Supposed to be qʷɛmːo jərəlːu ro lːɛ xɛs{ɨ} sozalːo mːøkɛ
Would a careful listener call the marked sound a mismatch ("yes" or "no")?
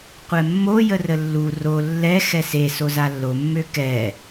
yes